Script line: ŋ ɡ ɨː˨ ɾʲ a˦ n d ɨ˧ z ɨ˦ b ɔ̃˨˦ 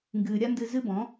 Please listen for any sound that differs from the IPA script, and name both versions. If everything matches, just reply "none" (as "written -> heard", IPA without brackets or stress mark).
none